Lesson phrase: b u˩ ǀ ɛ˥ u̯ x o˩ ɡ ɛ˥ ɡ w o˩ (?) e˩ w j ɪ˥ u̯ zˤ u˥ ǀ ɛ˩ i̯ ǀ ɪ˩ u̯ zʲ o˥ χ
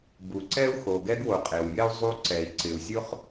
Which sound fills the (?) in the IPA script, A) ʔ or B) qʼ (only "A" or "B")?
B